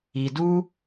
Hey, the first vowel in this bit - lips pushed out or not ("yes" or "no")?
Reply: no